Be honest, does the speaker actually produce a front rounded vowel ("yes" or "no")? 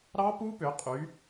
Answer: yes